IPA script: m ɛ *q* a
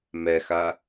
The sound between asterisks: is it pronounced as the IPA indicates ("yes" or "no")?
no